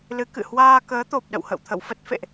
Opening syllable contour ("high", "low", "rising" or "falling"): rising